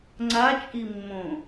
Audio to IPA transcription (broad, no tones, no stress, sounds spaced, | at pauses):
ŋ͡ǀ a t͡ʃʼ i mː õ